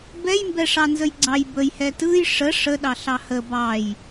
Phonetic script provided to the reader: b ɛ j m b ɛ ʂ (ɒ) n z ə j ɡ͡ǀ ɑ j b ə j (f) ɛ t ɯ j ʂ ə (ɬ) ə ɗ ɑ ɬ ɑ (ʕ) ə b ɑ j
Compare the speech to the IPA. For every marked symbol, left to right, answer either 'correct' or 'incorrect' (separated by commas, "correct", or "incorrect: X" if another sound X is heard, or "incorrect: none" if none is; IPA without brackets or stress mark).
incorrect: ɑ, incorrect: h, incorrect: ʂ, incorrect: h